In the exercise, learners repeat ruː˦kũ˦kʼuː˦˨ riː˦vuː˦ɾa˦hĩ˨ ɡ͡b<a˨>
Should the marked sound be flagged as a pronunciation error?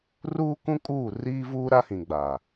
no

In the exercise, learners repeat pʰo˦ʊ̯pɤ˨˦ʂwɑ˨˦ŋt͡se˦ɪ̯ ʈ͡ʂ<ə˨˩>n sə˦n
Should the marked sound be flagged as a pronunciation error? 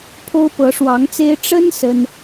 yes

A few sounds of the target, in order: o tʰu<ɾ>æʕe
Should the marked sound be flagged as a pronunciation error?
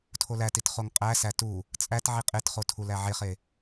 yes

